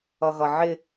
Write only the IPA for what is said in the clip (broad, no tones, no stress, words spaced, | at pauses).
ʌɣʌʕɪ